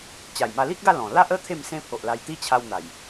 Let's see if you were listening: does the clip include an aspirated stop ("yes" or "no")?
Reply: yes